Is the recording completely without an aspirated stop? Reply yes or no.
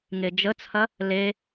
no